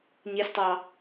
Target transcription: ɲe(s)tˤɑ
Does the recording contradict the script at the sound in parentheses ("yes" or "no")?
no